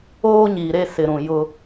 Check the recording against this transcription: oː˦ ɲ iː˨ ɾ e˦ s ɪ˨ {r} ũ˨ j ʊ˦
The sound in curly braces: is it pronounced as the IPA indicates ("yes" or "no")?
no